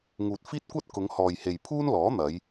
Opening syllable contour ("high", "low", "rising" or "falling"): low